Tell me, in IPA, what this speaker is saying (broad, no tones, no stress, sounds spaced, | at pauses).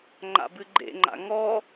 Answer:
ŋ͡ǃ a̰ b ɨ ɡ͡ǃ ḛ ŋ͡ǃ a̰ ŋ ɔ